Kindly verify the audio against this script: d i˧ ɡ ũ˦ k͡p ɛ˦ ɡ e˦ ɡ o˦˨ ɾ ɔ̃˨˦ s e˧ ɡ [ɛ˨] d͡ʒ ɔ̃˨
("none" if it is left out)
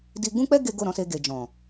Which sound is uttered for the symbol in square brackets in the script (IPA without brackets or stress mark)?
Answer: e˨